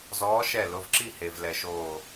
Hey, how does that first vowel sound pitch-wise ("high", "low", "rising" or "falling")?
rising